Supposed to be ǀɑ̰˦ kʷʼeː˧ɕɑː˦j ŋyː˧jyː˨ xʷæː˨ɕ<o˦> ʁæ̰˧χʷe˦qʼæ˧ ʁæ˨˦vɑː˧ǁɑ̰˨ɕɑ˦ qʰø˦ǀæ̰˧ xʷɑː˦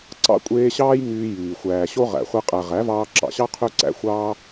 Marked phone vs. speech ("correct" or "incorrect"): correct